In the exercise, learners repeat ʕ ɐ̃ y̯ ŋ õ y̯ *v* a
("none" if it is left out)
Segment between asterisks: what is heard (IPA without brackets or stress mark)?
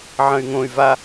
v